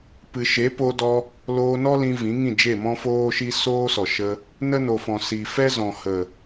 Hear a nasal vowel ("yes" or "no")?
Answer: yes